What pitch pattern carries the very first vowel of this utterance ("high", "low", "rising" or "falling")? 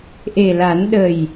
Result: low